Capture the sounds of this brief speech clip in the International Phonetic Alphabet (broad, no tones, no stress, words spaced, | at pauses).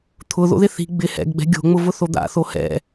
t̪ʰʊ ðo̰ðɪθi̤ ɡ͡bɪ hɛ̰ɡɡ͡bɛ̤ ɡʲo̤ŋ͡mʊvʊ θod̪a̰ θohɛ̰